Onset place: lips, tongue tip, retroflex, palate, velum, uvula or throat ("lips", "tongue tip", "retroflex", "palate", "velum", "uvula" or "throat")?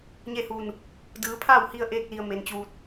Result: palate